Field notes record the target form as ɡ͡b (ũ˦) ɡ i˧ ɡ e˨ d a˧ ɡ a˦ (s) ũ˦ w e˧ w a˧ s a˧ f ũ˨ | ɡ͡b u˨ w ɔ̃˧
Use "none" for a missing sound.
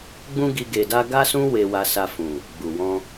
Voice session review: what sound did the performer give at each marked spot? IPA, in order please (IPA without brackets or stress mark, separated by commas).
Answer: ũ˦, s